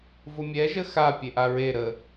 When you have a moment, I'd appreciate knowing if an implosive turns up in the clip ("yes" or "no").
no